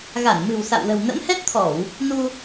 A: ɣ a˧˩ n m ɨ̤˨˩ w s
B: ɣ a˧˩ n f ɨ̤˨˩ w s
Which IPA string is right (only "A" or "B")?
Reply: A